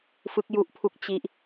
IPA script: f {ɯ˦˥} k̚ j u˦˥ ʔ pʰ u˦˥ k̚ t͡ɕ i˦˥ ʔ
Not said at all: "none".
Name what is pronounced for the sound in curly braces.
ɯ˦˥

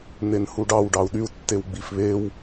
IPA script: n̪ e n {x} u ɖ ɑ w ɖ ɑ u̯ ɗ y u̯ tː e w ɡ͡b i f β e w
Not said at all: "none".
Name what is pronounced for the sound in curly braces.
h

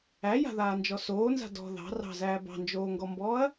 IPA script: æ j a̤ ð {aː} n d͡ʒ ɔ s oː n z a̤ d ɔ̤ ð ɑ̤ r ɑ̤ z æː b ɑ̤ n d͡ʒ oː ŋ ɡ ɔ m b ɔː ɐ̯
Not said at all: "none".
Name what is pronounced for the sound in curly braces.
aː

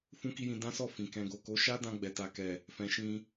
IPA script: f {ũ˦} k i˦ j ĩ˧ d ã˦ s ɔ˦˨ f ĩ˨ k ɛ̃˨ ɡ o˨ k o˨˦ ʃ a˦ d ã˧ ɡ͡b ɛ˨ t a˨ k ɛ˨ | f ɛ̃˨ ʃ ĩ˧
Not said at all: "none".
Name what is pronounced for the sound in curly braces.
ũ˦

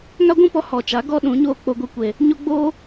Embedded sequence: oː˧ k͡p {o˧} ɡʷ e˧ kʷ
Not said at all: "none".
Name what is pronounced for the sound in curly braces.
o˧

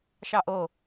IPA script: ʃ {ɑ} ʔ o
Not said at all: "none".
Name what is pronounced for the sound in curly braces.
ɑ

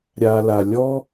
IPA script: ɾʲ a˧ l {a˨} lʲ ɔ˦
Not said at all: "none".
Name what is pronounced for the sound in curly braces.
a˨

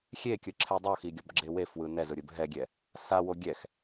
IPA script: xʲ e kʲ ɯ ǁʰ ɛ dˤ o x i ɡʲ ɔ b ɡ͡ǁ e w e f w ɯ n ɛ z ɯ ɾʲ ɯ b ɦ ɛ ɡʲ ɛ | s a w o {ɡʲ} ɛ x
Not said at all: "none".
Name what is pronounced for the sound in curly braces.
ɡʲ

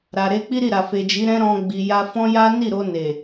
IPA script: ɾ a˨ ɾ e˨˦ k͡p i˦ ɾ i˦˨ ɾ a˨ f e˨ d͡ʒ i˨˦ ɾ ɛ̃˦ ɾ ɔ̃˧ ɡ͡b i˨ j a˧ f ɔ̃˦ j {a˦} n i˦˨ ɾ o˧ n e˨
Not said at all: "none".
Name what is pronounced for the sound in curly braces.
a˦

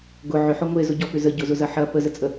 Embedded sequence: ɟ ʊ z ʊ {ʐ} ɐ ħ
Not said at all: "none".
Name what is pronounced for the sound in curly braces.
z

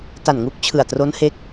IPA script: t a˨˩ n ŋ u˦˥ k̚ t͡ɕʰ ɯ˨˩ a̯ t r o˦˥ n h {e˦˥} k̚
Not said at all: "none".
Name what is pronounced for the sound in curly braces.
e˦˥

